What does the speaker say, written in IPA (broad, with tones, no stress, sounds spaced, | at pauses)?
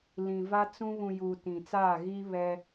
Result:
l ĩ˨ v a˦ t͡s ũ˦ β ũ˨ j uː˨ t ĩ˨ t͡s aː˦˨ ɣ iː˦ β ɛ˦